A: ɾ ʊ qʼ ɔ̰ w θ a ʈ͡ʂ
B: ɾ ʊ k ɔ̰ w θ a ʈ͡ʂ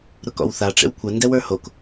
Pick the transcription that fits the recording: B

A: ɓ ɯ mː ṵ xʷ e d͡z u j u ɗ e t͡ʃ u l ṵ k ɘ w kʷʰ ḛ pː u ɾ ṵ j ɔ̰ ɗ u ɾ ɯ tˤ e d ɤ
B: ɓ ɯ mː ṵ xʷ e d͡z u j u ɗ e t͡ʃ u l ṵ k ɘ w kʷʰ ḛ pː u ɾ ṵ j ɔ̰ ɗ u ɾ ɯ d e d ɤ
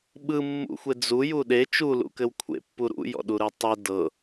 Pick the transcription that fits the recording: A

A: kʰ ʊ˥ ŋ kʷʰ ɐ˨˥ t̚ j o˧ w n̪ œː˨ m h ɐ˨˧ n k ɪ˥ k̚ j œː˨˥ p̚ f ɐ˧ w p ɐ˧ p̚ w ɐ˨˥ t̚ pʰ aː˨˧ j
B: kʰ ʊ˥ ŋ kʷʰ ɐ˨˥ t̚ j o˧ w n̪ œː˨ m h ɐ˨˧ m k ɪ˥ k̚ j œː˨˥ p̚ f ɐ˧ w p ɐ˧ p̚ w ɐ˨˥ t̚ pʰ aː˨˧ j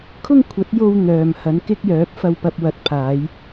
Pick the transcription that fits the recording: A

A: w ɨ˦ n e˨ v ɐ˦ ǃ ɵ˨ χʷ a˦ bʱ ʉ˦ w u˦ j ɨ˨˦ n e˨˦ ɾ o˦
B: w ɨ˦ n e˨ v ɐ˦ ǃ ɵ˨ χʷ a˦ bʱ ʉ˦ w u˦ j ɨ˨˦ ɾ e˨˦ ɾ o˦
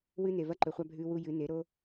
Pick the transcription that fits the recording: A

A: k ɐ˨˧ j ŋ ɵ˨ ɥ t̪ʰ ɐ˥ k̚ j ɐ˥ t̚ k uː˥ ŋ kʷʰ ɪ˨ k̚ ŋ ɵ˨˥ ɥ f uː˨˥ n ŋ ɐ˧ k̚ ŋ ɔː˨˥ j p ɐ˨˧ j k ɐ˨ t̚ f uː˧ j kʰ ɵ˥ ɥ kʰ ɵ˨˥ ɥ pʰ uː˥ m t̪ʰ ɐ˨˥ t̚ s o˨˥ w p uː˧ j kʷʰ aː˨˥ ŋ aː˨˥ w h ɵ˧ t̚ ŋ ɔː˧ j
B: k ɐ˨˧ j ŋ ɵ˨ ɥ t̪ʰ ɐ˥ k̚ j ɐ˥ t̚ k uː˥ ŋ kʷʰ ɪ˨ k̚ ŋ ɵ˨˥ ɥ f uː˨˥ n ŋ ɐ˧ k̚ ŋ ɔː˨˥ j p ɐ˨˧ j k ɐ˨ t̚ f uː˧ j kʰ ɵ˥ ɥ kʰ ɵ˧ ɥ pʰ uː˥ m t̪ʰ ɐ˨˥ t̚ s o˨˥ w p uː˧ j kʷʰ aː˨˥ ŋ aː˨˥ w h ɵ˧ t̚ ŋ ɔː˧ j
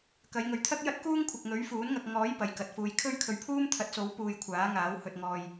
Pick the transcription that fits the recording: B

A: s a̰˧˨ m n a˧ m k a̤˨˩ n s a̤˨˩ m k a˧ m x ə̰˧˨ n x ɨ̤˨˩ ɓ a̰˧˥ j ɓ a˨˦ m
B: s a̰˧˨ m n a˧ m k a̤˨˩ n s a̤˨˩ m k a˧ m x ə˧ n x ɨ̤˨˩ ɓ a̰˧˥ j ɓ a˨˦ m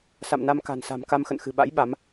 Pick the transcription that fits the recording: A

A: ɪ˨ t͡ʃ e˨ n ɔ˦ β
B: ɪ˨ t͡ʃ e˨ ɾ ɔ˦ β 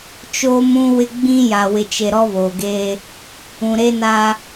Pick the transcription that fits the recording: B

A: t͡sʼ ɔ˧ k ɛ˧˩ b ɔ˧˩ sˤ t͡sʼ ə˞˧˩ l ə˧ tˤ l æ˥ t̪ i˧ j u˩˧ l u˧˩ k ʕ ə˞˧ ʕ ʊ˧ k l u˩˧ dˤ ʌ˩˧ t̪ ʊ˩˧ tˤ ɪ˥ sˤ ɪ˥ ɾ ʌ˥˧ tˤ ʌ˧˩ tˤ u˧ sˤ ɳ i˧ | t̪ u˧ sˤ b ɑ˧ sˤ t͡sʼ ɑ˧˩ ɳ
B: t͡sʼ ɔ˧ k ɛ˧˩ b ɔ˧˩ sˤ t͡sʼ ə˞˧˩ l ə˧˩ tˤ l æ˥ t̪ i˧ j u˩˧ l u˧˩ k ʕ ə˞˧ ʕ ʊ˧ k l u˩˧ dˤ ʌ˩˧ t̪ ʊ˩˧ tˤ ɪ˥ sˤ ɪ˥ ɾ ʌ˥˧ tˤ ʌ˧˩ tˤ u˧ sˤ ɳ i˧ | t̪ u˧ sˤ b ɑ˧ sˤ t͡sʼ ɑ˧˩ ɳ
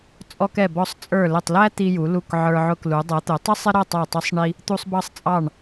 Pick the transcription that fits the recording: B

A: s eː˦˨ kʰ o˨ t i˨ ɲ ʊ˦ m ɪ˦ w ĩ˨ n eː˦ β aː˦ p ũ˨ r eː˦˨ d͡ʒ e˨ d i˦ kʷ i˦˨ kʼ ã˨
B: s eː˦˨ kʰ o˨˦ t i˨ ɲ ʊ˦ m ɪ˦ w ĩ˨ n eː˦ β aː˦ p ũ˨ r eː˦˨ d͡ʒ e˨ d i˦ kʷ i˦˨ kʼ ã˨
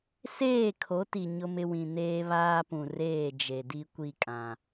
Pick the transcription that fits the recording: B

